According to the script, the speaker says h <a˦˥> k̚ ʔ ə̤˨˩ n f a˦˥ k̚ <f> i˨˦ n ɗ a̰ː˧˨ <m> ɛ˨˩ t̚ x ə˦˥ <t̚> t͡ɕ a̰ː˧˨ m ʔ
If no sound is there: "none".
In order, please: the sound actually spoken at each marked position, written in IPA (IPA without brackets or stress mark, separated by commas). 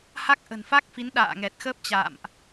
a˦˥, f, ŋ, p̚